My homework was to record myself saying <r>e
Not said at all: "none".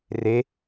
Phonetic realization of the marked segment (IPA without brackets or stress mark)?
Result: r